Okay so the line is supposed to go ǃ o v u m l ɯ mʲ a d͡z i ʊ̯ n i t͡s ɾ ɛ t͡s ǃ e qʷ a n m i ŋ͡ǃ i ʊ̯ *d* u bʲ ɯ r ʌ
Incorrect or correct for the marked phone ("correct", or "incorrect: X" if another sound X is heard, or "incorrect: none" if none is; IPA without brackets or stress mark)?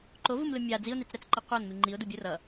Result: correct